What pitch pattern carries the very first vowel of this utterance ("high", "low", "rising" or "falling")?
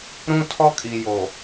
high